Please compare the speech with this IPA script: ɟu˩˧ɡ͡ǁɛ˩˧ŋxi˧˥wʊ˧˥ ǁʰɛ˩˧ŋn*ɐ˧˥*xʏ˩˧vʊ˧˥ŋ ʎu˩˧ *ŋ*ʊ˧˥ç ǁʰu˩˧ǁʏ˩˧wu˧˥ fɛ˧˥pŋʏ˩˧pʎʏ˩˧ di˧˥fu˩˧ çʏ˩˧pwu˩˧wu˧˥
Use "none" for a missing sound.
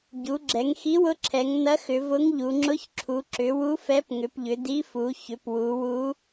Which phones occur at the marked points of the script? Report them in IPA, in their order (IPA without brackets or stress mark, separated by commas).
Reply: ɐ˧˥, ŋ͡ǁ